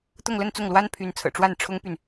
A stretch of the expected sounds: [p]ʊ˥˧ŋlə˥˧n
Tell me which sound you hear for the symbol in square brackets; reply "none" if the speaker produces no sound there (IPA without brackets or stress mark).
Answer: t̪